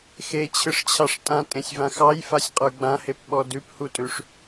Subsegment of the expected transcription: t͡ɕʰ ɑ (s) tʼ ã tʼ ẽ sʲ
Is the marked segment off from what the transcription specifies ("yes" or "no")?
yes